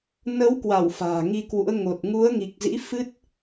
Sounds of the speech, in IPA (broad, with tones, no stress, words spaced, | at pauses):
nə˨˦wkwa˧˩w fa̤ː˨˩ŋi˧kwṵ˧˥ə̯ ŋo˨˩t̚ ŋu˨˦ə̯ŋi˨˩k̚zḭ˧˥ fɨ˦˥t̚